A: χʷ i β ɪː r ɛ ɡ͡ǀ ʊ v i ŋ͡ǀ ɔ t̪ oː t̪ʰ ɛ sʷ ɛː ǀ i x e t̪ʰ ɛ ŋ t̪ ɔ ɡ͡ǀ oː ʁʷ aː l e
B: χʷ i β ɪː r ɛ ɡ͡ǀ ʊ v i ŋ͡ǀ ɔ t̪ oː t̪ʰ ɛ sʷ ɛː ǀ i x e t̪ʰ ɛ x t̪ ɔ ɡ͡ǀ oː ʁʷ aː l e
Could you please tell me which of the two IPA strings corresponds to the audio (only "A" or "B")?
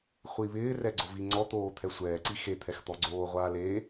B